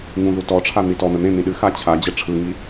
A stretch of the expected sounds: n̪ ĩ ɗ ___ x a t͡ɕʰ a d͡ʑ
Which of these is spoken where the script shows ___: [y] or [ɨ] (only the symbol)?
ɨ